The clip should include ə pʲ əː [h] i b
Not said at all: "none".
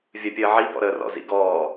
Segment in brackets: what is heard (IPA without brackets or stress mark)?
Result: ʕ